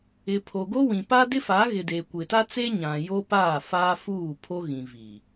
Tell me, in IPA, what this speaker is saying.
ɪ˨ pʰ o˨ ɡ o˦ w ĩ˨ p a˦ d ɪ˦ f a˨˦ ɣ ɪ˨ d eː˨ kʷ ɪ˨ t a˦ t͡s e˦ ɲ ã˨ j o˦ p aː˦˨ f aː˦ f uː˦˨ pʰ o˦ ɣ ĩ˨ v i˨

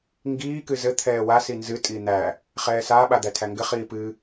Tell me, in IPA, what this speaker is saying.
ŋ ɡ iː k ɨ z ɘ t̪ʰ ɛː w a s i n z ɨ tʼ i n̪ æ | χ ɛː s a ɓ a d̪ æ tʰ æ ŋ ɡ ɘ χ iː p ɨ

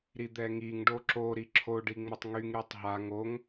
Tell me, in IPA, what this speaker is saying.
ɾ i d̪ ɛ ŋ i ŋ ɖ o ǁ o ɾ i ǁʰ o ɖ i ŋ͡m ə tˤ ŋ y ŋ ɾ y tˤ ɦ a ŋ o ŋ

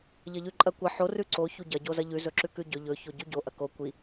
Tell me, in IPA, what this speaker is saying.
ʎ ɐ ʎ ʉ ǃʼ ɐ kʷ ɐ ħ o r ʉ ǀ o ç u ɟ ɐ ɟ o z ɐ ʎ ʉ z ɵ ǁ ʉ k ʉ ɟ ɵ ʎ ɵ ç o ɟ ʉ ɟ o ʔ ɐ k o kʷ i

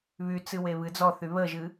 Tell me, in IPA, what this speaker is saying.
β y t͡s ɨ w e β ɨ d͡z ɔ θ y β ə ʒ ɨ

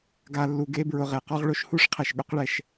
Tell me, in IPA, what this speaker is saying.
ɡ a˨ lː u˨ ɡ e˦ b ɹ ʊ˨ ʁ e˩ q ɔ˥ ʁ ɭ o˥ ʃ h u˥ ʂ qʰ ɛ˩ ʃ ɠ ʊ˥ q ɭ ɛ˨ ʃ

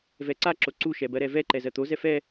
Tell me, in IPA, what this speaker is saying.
v ɛ ǀ a ǁ o ǀ u ʃ ɛ b ɜ ɾ ɛ v ɛ ǃ ɛ z ɜ t̪ o z ɛ f ɛ

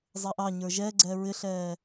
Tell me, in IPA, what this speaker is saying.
zˤ ɛ ʔ ɑ ɲ ə˞ ʒ ɛ ɡ͡ǀ ɛ ɹ ɪ ɬ ɛː

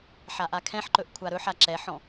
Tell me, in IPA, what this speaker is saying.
ħ a ʔ a kʰ ɛ̃ ħ ǃ ɵ ʔ kʷʰ a ɾ ɵ ħ a ǁ ɛ ħ ɔ̃

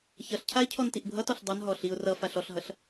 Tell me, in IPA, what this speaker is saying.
ç ʌ ɬ cʰ a ɪ̯ cʰ ɔ n t i ʔ bʱ ʌ t ɔ ɬ dˤ ʌ n ɦ ɔ ɬ i ʊ̯ r ʌ f a ɬ ɔ ɬ ɦ ʌ ɬ

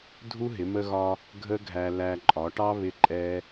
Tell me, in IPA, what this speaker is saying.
dʱ u˦ ɦ ɪ˨˦ m ə˧ ɣ ɒ˧ | ɡʱ ə˦ ɡʱ æ˧ l æ˧ ǃʼ ɒ˨˦ ʈ ɑ˦ β ɪ˦ ǃʼ ɛ˦

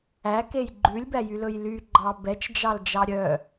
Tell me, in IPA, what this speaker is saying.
æ k e j ɡ͡ǃ ʉ lʲ b æ j y l ɵ j l y ɡ͡ǃ ɑ b ɛ t͡ʃ d͡ʒ ɑ l d͡ʒ ɑ ɾʲ œ

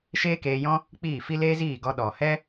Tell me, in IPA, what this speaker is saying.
ʃ eː˦ k eː˧ j ɔ̃˦ | k͡p iː˦˨ f i˦ l eː˦ z iː˦˨ ɡ ɔ˧ ɗ ɔ˨ h ɛ˦

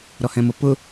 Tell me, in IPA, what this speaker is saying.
ɾ ɔ h ɛ̃ m ʊ p ʊ

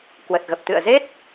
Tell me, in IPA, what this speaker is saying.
k w ə˨˩ t̚ ɣ ə˨˩ p̚ t̪ ɨ̰˧˨ ə̯ z e˦˥ t̚

